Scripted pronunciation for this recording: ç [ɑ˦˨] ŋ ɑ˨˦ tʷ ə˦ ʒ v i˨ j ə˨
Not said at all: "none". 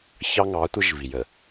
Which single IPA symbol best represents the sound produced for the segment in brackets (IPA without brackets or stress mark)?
ɑ˦